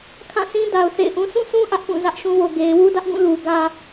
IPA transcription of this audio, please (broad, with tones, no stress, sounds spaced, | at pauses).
kʰ ã˦˨ s ĩ˦ d a˨ ʊ̯ θ ḛ˦˨ ɪ̯ ʔ ũ˦ s ũ˦˨ sʰ ũ˦ ʔ ä˦ ʔ p ũ˦˨ z ä˦ ʔ ʃ ũ˦ w o˨ ɡ e˨ ɪ̯ w u˦ d ä˦ ʔ ɡ ũ˦˨ l u˨ ɡ ä˦